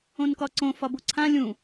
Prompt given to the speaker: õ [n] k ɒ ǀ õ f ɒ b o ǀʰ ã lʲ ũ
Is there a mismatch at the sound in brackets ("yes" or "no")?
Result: no